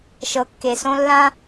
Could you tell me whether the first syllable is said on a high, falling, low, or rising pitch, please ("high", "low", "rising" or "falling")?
rising